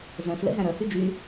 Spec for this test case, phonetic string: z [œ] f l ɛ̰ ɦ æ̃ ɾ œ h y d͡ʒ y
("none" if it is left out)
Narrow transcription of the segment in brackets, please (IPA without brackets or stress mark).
œ̃